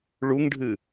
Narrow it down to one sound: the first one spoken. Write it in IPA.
ɭ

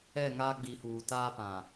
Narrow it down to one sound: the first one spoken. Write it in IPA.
ɛ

